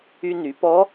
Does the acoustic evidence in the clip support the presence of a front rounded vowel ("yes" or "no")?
yes